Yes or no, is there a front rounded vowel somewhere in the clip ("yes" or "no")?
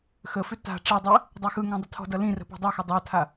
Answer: yes